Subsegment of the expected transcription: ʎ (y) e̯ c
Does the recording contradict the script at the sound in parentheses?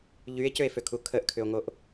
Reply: no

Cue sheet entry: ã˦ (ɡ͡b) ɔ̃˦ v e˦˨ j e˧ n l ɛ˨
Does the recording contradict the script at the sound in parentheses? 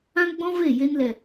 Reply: no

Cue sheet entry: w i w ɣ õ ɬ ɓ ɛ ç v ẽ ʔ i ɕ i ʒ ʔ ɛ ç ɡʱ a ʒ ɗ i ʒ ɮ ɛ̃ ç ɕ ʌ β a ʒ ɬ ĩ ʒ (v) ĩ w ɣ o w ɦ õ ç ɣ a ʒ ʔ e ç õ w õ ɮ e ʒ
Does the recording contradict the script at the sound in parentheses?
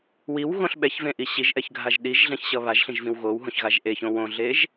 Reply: no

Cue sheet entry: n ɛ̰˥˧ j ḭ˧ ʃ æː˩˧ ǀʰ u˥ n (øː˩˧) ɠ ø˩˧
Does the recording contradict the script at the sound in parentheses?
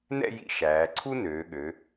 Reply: no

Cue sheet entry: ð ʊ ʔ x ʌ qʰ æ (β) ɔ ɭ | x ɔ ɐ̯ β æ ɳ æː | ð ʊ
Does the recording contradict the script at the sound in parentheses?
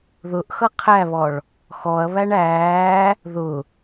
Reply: no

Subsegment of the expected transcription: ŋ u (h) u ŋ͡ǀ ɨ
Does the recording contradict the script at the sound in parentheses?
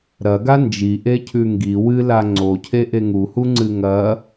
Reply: no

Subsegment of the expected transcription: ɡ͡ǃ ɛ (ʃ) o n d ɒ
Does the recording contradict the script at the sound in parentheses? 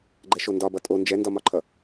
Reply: no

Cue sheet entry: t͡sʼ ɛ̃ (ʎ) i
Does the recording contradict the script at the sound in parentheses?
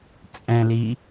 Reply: yes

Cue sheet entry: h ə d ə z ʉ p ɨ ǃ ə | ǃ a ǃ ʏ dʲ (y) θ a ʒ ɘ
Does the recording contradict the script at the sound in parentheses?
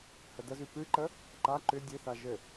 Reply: yes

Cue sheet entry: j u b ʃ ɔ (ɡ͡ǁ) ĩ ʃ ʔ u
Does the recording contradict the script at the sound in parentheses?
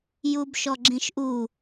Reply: no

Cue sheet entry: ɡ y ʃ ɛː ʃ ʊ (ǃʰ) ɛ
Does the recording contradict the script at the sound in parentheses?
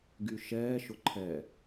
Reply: no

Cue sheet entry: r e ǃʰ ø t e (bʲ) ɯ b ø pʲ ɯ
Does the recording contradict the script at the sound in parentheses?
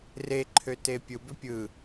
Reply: yes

